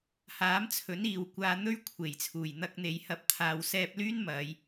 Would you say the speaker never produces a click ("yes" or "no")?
yes